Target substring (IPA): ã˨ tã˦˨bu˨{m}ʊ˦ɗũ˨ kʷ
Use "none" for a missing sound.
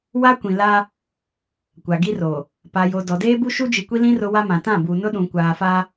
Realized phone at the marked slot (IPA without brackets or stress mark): n